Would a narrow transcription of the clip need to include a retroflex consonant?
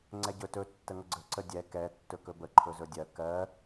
no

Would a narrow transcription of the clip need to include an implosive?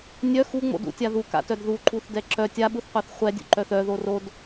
yes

